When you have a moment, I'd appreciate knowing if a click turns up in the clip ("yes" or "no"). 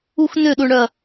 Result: no